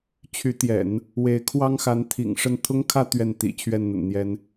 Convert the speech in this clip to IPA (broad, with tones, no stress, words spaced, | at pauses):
t͡ɕʰy˧˥t̪jɛ̰˨˩˦n | we˧˥ɪ̯kʰwɑ˥ŋxa˧˥n t̪ʰḭ˨˩ŋ ʂə˥˩n t̪ʰʊ˥ŋkʰä˥˧ t̪ɥɛ˥˩nt̪ḭ˨˩ t͡ɕʰɥɛ˥˩nn̪ə̰˨˩nn̪jɛ˧˥n